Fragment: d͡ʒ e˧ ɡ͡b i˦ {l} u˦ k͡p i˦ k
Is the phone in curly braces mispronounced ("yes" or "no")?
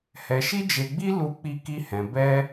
no